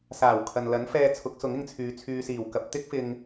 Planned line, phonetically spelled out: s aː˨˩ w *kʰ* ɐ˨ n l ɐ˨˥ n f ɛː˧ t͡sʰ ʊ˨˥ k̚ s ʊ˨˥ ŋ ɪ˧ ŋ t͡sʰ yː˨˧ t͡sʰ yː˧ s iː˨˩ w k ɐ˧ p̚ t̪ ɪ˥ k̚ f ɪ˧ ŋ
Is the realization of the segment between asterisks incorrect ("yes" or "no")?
no